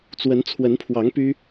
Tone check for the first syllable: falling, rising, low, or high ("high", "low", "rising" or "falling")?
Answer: rising